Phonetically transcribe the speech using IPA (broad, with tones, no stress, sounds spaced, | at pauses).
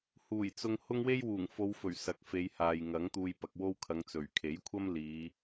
h uː˨˩ j t͡s ʊ˧ ŋ h ʊ˥ ŋ w e˥ j w uː˨˩ ŋ f o˨˧ w f ɵ˨˩ ɥ s ɐ˨˥ k̚ f e˨˧ j h aː˨ j ŋ ɐ˨˥ ŋ t̪ uː˧ j p ɐ˨ k̚ w o˥ w kʰ ɐ˨˧ ŋ t͡s ɵ˨˩ ɥ kʰ e˨˥ j kʷʰ ɐ˥ m l iː˨˧